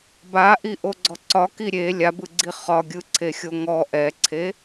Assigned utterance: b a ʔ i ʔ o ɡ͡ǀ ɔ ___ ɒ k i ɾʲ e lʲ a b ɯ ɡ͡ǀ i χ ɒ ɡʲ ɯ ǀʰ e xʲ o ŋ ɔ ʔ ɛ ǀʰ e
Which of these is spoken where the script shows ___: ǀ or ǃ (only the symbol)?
ǀ